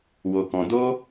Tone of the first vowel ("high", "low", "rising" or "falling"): low